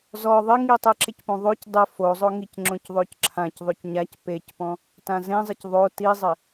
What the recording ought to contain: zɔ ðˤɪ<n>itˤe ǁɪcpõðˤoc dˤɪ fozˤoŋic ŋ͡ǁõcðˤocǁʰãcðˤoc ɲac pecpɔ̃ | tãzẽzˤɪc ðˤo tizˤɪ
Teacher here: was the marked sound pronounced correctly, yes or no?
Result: no